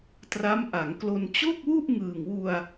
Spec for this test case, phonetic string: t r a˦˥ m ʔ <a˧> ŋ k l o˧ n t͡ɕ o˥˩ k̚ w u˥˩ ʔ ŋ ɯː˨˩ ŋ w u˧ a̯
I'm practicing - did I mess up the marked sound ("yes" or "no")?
yes